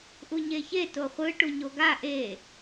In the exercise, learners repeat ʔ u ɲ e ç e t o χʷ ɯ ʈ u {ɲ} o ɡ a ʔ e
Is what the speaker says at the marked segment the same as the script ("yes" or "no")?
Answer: yes